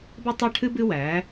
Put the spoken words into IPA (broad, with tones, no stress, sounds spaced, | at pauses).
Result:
b ɛ˦ tˤ æ˦ ʈʰ ɨ˦ b ɨ˦ w æ˨˦